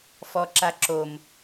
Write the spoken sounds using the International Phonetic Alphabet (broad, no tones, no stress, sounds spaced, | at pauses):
f ɔ ǁ a ǁ o m